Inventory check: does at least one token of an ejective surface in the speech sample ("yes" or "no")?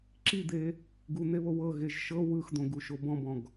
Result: no